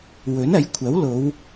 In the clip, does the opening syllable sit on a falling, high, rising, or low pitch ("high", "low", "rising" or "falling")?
rising